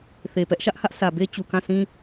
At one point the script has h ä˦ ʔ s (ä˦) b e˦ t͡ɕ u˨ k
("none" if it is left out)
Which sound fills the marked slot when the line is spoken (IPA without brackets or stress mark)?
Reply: ä˨